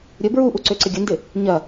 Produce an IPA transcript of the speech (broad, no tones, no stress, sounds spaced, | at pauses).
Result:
ɾʲ ə b ɹ u ʔ u ǀ ø ǀ ɪ ɡʲ ə n d ɪ | ɲ ɐ